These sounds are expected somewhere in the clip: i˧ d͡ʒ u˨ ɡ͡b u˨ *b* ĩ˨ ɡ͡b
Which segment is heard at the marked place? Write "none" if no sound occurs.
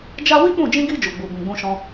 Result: b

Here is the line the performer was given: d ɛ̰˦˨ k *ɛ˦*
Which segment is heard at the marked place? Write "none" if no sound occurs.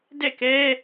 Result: ɛ˦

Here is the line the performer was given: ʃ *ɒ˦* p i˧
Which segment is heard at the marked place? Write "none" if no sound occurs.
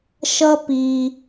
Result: ʌ˦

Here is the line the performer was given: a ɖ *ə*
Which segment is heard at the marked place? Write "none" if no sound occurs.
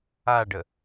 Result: ə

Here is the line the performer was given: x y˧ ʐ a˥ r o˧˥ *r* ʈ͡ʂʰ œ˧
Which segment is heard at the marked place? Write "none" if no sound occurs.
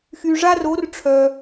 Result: r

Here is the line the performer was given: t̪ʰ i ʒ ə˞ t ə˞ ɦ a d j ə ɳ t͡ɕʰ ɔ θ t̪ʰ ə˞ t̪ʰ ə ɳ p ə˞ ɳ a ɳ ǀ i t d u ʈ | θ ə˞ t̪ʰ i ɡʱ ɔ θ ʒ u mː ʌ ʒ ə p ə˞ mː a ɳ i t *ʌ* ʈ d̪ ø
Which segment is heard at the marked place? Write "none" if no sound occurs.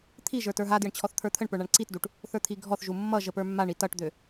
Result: ʌ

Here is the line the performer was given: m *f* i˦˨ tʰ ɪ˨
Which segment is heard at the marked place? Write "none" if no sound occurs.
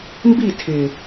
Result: b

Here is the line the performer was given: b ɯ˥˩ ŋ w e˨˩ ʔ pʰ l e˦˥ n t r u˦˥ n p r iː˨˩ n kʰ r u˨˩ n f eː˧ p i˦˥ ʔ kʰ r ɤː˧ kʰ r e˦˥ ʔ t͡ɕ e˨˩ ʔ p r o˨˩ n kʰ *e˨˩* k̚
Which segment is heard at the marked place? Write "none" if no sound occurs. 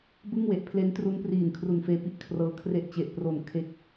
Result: e˥˩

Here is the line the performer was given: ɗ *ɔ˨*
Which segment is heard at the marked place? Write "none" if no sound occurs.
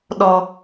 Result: ɔ˨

